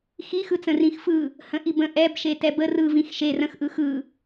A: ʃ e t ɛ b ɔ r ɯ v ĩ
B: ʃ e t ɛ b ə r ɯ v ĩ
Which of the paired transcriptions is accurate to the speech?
B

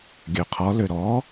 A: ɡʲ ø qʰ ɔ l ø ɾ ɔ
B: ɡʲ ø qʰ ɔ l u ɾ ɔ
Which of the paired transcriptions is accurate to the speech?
A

